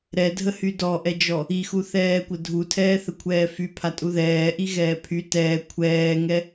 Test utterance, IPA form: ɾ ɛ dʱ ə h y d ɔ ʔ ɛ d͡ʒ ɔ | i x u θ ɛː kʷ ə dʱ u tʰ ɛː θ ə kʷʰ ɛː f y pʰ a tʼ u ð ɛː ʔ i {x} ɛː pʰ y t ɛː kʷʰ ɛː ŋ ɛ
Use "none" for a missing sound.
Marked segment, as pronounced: ɣ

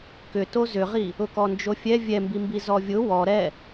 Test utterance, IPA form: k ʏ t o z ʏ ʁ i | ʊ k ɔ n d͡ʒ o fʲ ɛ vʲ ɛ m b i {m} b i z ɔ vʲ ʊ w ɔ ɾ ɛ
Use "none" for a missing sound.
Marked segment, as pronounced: m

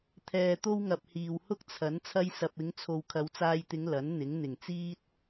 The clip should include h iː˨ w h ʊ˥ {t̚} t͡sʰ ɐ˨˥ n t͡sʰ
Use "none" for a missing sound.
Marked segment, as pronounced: k̚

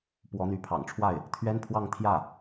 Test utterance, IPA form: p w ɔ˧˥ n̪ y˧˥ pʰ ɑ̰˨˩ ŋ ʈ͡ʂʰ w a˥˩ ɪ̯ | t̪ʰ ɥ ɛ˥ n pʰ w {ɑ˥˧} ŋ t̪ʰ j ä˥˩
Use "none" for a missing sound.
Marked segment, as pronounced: ɑ˥˧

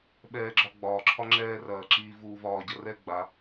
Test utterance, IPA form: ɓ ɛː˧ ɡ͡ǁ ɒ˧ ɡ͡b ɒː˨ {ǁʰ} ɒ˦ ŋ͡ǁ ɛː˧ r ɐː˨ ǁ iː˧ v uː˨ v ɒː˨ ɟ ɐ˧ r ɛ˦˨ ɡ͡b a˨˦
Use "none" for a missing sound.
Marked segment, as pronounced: ǁʰ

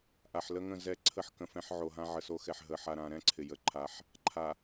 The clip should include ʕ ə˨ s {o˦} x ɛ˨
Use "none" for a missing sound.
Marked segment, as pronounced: o˦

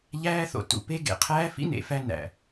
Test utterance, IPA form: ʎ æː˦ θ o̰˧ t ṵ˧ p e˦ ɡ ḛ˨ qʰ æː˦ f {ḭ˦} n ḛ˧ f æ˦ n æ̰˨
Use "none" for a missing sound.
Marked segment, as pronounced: ḭ˦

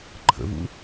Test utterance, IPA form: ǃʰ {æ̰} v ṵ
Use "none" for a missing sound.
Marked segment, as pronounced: ə̰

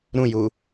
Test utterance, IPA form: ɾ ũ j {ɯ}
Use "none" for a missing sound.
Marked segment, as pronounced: u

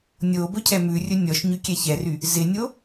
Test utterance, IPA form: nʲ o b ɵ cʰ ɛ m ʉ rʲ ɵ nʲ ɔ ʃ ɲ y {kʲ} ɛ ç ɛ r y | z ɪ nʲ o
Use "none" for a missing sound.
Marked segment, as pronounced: kʲ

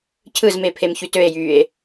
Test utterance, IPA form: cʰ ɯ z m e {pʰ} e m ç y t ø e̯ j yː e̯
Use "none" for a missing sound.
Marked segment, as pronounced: pʰ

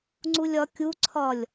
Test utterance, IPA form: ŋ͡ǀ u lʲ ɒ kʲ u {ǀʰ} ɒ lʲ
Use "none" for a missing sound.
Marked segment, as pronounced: ǀʰ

